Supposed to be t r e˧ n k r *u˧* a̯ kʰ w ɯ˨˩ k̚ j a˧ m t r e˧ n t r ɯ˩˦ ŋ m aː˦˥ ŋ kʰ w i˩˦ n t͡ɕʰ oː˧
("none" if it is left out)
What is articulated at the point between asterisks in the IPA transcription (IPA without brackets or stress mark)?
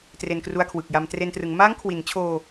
u˧